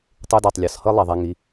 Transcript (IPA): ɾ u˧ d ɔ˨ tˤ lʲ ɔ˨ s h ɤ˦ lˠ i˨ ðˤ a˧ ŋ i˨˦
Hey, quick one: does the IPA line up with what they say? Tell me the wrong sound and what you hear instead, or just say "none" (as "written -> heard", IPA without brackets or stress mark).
ɾ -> tˤ